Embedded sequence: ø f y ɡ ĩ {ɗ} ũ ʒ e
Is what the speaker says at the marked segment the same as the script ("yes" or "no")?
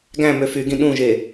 yes